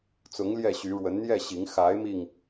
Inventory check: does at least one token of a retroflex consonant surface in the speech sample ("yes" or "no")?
yes